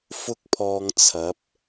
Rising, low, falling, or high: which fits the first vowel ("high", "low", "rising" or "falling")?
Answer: high